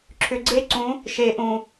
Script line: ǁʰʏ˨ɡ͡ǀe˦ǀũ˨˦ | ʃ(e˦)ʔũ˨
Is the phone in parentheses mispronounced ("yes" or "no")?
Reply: yes